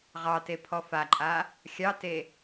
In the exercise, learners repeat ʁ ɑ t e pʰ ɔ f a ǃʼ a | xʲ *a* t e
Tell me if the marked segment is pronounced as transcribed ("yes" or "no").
no